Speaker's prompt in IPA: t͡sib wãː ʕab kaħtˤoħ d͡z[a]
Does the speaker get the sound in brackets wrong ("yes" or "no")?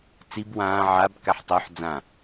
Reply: yes